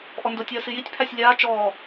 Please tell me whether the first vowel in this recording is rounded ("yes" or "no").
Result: yes